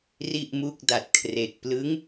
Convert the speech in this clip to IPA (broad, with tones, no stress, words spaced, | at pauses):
ri˥˩ʔmu˥˩k̚da˨˩t̚kʰre˨˩k̚ plɯ˦˥ŋ